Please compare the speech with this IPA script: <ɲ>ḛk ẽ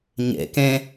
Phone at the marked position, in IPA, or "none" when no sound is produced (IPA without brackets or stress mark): ɲ